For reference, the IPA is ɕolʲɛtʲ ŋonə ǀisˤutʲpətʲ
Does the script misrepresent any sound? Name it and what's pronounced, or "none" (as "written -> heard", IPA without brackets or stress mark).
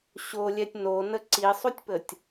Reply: ŋ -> n